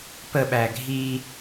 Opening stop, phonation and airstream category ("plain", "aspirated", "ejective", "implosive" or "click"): plain